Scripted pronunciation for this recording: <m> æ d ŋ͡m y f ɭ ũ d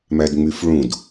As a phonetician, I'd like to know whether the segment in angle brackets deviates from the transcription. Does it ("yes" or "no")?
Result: no